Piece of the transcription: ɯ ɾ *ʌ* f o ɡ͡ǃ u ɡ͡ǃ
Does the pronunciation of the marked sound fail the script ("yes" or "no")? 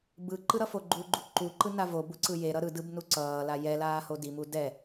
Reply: no